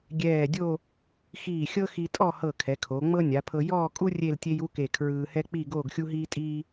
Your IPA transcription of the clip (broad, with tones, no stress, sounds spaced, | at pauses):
ɡʲ ɛː˧˩ dʲ o˥˧ | x iː˧˩ xʲ ɤ˥ x i˧ tʼ ɔ˥˧ h ɤ˧˩ kʰ ɛ˩˧ kʰ o˩˧ ŋ͡m ɤ˥ nʲ a˩˧ pʰ ɤ˧ j ɔː˥˧ kʼ u˥ rʲ e˥˧ l tʲ e˥ j u˥ k e˧˩ kʰ ɹ ɯː˧ h ɛ˥ k͡p i˥˧ ɡ oː˥˧ ɡ xʲ u˥ ɦ iː˥ tʼ iː˥